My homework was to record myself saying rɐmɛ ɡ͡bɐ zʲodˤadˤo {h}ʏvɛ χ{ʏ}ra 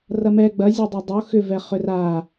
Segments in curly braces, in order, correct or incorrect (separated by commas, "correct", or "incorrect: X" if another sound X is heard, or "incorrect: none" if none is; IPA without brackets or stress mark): incorrect: x, correct